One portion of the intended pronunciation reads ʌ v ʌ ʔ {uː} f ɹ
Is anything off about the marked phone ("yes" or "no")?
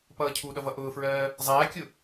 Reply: yes